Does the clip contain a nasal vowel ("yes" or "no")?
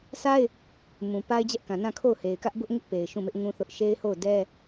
yes